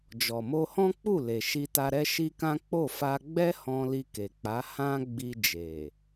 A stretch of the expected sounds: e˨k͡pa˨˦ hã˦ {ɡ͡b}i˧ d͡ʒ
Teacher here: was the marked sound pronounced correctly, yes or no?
yes